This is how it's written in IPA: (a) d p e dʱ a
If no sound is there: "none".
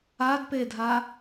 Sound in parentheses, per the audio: a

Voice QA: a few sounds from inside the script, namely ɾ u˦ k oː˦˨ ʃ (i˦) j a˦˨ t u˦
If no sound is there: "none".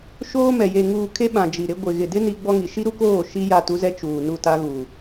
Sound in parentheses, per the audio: i˦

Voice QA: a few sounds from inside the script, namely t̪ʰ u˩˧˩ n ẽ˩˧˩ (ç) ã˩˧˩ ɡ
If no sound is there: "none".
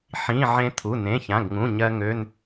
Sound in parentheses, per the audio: ç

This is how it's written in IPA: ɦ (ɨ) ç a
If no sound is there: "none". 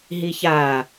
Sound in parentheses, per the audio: i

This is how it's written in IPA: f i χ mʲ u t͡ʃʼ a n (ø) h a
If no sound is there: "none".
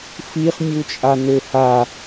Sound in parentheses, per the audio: ø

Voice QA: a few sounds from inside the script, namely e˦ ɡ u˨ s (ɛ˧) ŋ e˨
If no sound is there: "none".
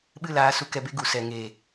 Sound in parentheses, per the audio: ɛ˨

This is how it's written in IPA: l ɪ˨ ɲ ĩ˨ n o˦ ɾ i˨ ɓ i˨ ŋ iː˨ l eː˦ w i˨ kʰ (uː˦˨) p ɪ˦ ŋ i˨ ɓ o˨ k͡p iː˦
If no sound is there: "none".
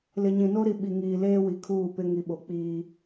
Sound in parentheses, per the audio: uː˦˨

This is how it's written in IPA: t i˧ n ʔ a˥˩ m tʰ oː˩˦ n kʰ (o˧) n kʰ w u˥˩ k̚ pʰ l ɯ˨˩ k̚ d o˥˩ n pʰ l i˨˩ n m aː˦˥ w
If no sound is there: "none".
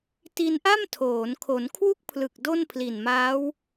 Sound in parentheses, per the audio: o˩˦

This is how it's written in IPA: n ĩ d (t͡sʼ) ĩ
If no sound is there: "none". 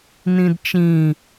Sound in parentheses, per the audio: t͡ʃ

